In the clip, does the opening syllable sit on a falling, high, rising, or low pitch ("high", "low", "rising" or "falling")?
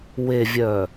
low